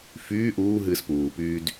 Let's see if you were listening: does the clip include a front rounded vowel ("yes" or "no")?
yes